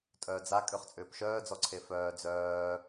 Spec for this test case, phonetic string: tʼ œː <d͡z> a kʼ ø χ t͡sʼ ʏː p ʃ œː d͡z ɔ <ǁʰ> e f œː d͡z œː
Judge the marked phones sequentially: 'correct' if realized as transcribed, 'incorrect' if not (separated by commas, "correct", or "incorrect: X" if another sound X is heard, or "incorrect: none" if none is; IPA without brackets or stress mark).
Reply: correct, incorrect: ǀʰ